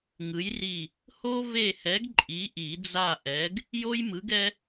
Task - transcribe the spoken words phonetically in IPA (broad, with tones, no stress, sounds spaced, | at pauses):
ŋ ɯ˨˥ j r i˦˨ | h o˥ v e˦˨ h ɛ˨˥ ɡ ǃʼ i˨˥ ʔ i˨˩˦ d͡z a˦˨ ʔ ɛ˨˥ ɡ | j o˥ j m ɯ˨˥ ɡ ɛ˥